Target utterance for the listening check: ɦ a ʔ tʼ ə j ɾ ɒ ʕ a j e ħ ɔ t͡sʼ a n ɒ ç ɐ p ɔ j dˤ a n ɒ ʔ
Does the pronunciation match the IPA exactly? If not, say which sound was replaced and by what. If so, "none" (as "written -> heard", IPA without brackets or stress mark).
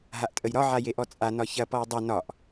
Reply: ħ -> ʔ